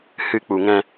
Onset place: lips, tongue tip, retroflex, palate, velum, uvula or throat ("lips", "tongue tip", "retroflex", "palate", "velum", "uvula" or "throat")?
throat